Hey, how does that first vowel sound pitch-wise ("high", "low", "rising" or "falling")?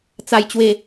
low